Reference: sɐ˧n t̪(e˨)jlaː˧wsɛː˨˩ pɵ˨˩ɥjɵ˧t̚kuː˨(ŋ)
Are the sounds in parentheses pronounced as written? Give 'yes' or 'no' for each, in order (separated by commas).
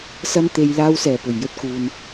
yes, no